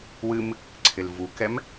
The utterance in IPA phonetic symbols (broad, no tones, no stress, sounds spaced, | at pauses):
w ɨ m | ǀʰ ɪ l v u k ɛ m